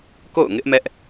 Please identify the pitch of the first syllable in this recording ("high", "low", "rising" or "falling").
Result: falling